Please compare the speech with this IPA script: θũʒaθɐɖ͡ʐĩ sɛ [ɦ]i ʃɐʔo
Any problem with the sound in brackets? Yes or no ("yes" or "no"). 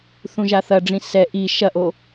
yes